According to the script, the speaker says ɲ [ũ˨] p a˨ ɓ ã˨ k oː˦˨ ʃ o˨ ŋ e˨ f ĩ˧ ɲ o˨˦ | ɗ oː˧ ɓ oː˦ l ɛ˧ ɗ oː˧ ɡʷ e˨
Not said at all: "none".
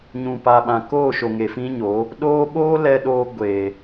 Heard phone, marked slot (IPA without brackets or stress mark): ũ˨